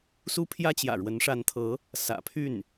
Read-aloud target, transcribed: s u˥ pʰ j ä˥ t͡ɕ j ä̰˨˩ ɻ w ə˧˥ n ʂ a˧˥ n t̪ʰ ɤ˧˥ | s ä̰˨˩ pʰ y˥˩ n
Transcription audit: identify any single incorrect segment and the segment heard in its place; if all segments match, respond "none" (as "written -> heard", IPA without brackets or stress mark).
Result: none